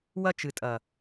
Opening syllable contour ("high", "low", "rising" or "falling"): high